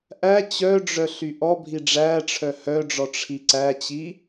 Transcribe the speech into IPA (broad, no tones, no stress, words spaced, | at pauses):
ʔæ t͡ɕœɖ͡ʐœ ɬyʔɔbʱi ɖ͡ʐæʈ͡ʂʰœ hœɖ͡ʐɔ ʈ͡ʂʰiǀæt͡ɕi